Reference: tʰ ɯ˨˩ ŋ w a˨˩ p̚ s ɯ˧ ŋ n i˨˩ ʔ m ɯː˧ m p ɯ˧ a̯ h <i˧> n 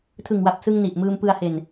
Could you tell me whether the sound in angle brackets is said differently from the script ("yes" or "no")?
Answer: yes